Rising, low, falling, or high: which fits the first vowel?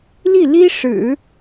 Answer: falling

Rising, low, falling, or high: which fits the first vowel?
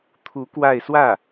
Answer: rising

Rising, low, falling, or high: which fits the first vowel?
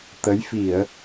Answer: rising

